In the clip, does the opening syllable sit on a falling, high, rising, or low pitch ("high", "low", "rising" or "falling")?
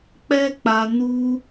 high